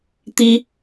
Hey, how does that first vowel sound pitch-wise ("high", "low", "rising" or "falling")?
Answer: high